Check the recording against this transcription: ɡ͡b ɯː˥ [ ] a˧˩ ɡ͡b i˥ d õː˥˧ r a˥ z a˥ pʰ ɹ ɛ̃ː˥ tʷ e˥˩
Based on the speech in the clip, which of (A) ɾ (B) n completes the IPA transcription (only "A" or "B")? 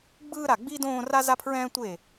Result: A